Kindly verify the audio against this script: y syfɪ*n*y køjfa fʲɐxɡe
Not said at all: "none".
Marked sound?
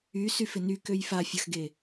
n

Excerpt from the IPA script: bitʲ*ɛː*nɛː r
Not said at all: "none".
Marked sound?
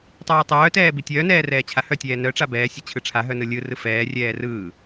œː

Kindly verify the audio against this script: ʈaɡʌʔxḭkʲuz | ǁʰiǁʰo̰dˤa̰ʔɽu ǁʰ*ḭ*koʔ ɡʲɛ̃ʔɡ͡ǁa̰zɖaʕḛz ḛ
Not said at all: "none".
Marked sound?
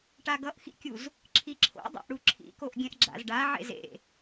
ḭ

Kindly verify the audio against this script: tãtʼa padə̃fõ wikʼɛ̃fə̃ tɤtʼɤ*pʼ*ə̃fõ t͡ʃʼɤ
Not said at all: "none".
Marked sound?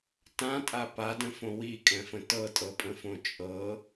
pʼ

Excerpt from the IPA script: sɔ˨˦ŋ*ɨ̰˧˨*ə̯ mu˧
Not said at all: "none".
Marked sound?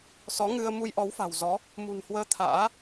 ɨ˧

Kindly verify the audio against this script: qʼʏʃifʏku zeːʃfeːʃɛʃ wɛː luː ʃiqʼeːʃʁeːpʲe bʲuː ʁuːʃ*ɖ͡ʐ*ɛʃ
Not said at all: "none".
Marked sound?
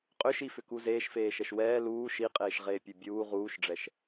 ɖ͡ʐ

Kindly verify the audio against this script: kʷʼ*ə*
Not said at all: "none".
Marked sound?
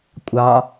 ɑ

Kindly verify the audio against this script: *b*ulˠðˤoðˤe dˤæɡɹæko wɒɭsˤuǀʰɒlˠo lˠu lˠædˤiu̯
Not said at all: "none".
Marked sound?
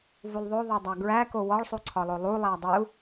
v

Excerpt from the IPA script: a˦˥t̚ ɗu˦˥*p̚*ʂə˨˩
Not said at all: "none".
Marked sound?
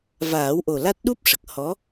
p̚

